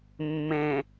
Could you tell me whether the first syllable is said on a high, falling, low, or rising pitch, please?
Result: low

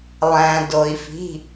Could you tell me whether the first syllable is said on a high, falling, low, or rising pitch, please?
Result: low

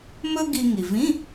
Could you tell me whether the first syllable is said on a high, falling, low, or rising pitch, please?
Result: high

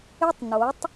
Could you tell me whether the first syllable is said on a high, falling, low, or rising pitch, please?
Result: high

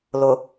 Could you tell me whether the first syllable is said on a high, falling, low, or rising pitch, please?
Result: low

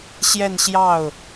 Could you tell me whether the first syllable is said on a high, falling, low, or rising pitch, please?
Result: falling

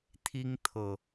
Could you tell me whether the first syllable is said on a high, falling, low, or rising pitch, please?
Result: high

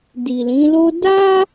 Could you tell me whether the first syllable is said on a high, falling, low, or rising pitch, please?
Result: low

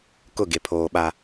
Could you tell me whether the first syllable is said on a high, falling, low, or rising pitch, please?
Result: falling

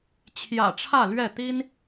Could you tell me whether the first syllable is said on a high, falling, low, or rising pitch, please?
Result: low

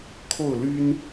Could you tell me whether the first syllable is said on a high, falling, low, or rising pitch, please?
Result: falling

